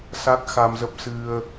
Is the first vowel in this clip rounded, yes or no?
no